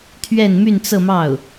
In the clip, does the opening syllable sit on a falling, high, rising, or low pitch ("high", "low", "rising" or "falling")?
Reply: falling